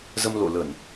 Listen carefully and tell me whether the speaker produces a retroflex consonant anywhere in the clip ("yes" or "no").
no